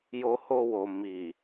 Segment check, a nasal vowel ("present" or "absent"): absent